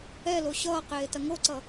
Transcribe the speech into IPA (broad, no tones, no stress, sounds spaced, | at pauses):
ɛ l o ɕ ʌː q eː t ɐ ŋ o ǀ ʌ